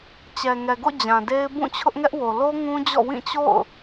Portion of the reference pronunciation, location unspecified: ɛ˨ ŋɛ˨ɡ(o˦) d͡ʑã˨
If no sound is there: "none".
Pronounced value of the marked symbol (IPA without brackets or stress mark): o̰˦˨